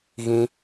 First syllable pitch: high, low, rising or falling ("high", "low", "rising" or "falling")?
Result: high